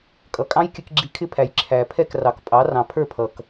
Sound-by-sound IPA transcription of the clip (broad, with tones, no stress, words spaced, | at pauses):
kʼʌ˩kʼɑ̃˥jkʲə˧k ɡ͡ǁi˧kʰɪ˥pʰæ˩j ǁʰæ˩ pʰɛ˥˩krɑ˩k pʼɑ˩˥rɑ̃˩ pʰə˞˥˩pʰʌ˩k